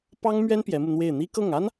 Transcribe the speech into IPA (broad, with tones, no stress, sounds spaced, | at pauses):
p ɑ˥ ŋ m ɥ ɛ˥ n p j ɛ˧˥ m u˧ n̪ w e˥˩ ɪ̯ n̪ i˥ k ɤ˥˩ ŋ a˥ n